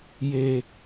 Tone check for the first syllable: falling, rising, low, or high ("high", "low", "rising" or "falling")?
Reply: high